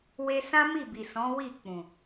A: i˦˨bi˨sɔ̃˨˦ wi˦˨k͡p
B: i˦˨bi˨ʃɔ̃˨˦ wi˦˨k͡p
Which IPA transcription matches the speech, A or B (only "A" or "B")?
A